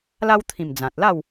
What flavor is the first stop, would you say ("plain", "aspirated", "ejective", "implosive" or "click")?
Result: aspirated